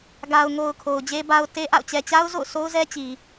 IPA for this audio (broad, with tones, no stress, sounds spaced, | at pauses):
ɡ a˨ ʊ̯ ŋ o˨ ʊ̯ kʰ o˨ ʊ̯ d͡ʑ e˦ b a˦ ʊ̯ t e˦ ʔ a̰˦˨ ʊ̯ t͡ɕ ɛ˨ t͡ɕ a˦ ʊ̯ z o̰˦˨ ʊ̯ s o˦ ʊ̯ z ɛ˦ t͡ɕ i˨